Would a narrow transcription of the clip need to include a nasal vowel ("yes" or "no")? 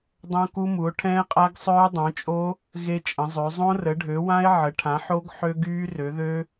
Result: yes